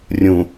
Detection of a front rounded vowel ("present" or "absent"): absent